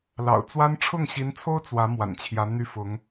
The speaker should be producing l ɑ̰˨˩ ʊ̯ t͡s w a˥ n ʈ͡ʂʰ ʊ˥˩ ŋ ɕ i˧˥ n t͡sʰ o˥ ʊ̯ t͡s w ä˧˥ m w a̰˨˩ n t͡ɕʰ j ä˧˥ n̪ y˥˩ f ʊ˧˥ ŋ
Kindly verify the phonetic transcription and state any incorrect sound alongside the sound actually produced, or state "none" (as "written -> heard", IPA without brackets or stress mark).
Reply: none